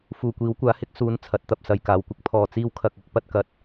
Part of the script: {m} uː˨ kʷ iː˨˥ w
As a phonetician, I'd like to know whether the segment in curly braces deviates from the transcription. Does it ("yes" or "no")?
yes